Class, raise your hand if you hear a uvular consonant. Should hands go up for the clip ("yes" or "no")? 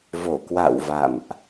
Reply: no